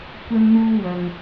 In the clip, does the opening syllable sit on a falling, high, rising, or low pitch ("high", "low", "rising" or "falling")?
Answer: high